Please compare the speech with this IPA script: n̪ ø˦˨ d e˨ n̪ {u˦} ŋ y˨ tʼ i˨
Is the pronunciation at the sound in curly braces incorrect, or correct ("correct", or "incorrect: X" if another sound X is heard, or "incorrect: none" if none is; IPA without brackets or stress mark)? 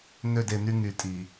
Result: incorrect: y˦